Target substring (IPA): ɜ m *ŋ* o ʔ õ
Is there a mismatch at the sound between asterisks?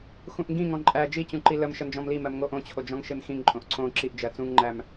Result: no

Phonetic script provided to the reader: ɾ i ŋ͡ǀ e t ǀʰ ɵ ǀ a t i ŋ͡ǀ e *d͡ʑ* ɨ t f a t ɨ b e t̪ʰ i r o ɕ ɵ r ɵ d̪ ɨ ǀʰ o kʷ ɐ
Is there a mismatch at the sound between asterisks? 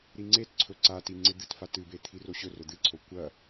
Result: yes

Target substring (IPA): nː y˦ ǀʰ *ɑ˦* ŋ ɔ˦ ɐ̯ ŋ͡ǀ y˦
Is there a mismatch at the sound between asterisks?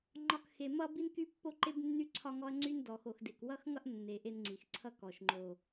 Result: yes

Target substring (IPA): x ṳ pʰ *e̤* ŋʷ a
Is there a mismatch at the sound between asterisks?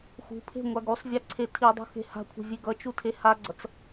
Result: no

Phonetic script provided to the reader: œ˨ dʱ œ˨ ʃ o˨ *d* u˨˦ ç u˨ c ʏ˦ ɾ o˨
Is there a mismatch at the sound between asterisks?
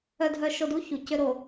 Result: no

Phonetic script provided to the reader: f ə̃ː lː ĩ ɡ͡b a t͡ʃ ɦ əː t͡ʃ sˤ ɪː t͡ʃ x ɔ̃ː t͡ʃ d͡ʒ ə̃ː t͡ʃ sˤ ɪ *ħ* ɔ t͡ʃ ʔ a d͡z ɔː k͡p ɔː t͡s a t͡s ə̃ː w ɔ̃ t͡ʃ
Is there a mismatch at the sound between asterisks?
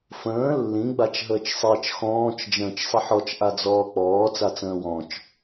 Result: no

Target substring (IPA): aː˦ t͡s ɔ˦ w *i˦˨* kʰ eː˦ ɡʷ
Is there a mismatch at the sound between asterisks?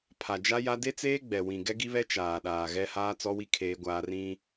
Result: yes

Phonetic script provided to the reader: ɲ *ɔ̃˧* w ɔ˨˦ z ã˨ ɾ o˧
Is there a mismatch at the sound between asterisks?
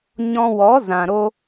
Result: no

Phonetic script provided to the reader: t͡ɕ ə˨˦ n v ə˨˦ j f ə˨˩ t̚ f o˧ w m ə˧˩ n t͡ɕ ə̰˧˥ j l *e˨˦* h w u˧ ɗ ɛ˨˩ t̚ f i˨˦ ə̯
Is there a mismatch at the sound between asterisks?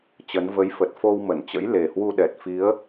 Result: yes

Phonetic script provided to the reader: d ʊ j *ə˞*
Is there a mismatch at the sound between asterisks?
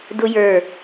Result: no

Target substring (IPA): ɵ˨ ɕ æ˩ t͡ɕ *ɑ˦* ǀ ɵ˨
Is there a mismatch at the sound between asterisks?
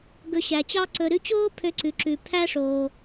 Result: no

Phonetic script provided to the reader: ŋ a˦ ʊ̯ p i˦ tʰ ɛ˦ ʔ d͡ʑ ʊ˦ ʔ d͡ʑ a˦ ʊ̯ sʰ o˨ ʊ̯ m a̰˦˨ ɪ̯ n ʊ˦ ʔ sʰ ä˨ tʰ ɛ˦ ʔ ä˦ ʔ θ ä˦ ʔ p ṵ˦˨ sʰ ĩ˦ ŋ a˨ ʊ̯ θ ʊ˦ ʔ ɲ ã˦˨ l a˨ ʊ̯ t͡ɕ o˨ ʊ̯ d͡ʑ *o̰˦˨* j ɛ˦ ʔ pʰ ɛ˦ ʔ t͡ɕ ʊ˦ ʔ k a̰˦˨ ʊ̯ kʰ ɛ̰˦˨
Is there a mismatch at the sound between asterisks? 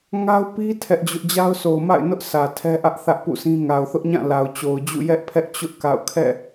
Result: yes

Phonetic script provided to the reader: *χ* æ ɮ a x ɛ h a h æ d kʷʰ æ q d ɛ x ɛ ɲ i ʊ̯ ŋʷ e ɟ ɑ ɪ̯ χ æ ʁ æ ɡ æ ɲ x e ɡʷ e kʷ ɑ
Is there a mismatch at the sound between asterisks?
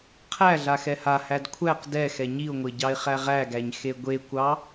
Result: yes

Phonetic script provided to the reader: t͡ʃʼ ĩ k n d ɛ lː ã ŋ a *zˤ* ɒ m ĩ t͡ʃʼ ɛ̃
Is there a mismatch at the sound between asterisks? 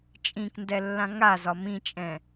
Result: yes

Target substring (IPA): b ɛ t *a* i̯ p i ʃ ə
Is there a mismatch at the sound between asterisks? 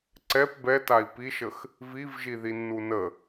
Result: no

